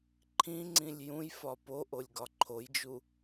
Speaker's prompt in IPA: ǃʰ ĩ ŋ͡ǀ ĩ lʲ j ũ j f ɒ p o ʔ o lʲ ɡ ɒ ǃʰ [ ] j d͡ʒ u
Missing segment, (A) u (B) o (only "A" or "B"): B